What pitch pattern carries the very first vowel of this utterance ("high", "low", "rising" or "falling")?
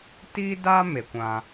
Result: high